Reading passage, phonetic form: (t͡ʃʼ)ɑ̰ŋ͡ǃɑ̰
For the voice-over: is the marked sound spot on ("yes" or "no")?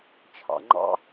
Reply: no